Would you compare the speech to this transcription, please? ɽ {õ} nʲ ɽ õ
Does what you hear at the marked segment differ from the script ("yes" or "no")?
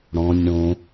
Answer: yes